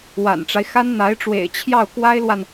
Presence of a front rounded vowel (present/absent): absent